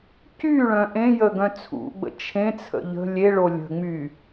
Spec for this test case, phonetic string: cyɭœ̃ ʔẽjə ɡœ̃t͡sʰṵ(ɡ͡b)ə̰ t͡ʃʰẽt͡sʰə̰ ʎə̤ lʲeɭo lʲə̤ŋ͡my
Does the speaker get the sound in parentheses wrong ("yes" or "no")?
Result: no